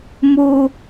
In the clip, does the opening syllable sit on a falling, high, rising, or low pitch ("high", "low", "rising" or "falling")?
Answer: high